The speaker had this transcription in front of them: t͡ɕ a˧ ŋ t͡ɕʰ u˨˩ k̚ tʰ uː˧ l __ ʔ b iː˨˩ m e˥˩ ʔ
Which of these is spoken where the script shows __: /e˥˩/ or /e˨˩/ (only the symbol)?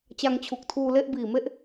e˥˩